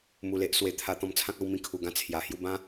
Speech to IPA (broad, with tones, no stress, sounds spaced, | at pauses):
m u˧ l e˦ ʔ s w e˨˩ t̪ʰ a˧ t̪ ɔ̃˧ m t͡sʰ ã˦ k̚ a˧ w m ĩ˧ kʰ u˨˩ ɡ ã˥˧ t͡sʰ j a˨˩ h j u˥˧ b ã˦